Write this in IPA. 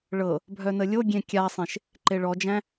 ɭ ɤ | bʱ œ n ə lʲ o ɡʲ ẽ kʲ a sˤ ẽ ʃ | ǃ e ɭ ɔ d͡ʒ æ̃

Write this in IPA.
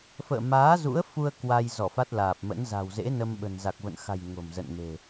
f ə̰ː˧˨ m aː˨˦ z ṵ˧˥ ə̯ f u˧ ə̯ k w a˧ j z ɔ˧˩ f a˦˥ t̚ l aː˨˩ p̚ m ə̰˧˥ n z a̤˨˩ w z ḛ˧˥ n ə˧ m ɓ ə̤˨˩ n z a˨˩ k̚ v ə̰˧˨ n x a̤˨˩ j ŋ o̤˨˩ m z ə̰˧˨ n m e̤˨˩

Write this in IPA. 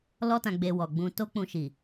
l ɔ˧ t ã˨ ɡ͡b e˨ w ɔ˨ ɡ͡b ũ˧ t o˧ k͡p ũ˨ ʃ i˨

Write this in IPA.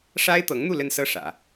ʂ a˥ ɪ̯ t̪ ɤ˧˥ ŋ n̪ u˥˧ l ə˥˧ n s ɤ˥˩ ʂ ä̰˨˩˦

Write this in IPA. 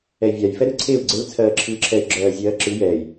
ɛ i̯ vʲ a j f ɛ ɾ ɯ ǀʰ e u̯ ɡ͡ǀ e l t͡sʰ ɜː ǁʰ ɯː ǁʰ ɛ y̯ ɡ͡ǁ ɜː zʲ ɜː ǁ ɯ j ɛ j

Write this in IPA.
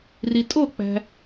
r i tʼ o k͡p æ̤

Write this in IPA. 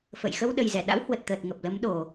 f ə̰˧˨ j x ə˧ w ɗ ə˨˩ j z ɛ˧˩ ɗ a̰˧˥ w h w ə˨˩ t̚ t̪ əː˨˩ t̚ ŋ ə˨˩ p̚ l ə˨˦ m ɗ o˨˩

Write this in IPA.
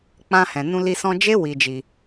k͡p ã˧ h ɛ̃˨ n ũ˧ l i˧ s ɔ̃˧ d͡ʒ e˦ w i˧ d͡ʒ i˧

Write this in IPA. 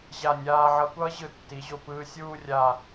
ʑ a˧˩ nʲ aː˧ ʕ ʌ˧ kʷ ʌː˥ ʑ ɯ˧˩ tː i˩˧ ʑ o˧˩ p ɯː˧ sʲ uː˥˧ rʲ a˧˩

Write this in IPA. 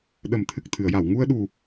ɗ ə˨˩˦ m t̪ʰ ɨ˨˩ k̚ t̪ʰ ɨ˨˩˨ ə̯ j a˨˩˨ w ŋ u˧ ə̯ ɗ u˨˩

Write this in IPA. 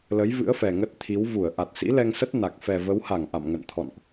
l ə˨˦ j v ɨ̰˧˥ ə̯ f ɛ˨˩ ŋ ə˦˥ t̚ t̪ʰ i˨˦ w v u˧˩ ə̯ ʔ a˨˩ t̚ s ḭ˧˥ l ɛ˧ ŋ s ə˦˥ t̚ n a˨˩ k̚ f ɛ˨˩ v ə˨˦ w h a˧˩ ŋ ʔ a̰˧˨ m ŋ ə̰˧˨ n t̪ʰ ɔ̰˧˨ n ʔ

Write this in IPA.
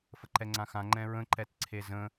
f ə ǃ ɛ ŋ͡ǀ ã x ã ŋ͡ǃ ɛ̃ ɹ ə̃ ǃ ɛ t ǀʰ e z ə̃

